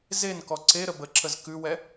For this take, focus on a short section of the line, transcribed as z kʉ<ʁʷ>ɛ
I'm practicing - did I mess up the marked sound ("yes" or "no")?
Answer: yes